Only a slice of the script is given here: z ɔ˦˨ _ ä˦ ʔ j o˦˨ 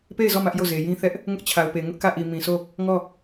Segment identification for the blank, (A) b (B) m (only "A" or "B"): B